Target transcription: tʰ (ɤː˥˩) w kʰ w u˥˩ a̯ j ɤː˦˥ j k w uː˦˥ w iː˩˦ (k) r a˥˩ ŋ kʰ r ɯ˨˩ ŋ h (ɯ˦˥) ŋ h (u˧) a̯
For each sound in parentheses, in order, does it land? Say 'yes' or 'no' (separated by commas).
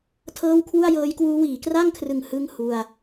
yes, yes, no, yes